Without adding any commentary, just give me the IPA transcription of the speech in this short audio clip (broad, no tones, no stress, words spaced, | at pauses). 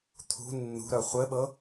t̪ʰṳ nːṳɾœ χʷɘɓɤ